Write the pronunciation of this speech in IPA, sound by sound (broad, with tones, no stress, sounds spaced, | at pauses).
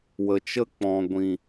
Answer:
w ə˨ t͡ʃ ə˦ k͡p ɔ̃˨ ɡʷ ĩ˨